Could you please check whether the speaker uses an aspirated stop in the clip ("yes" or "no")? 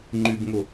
no